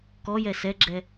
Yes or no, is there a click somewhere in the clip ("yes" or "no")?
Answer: yes